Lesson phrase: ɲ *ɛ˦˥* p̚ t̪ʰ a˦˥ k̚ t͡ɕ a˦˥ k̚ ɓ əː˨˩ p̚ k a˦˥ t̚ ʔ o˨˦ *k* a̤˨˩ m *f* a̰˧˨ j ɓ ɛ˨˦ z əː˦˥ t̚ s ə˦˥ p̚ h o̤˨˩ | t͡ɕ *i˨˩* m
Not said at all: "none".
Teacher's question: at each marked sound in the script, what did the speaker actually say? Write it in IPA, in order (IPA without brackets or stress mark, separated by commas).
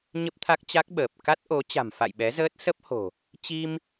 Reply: ə˦˥, t͡ɕ, f, i˧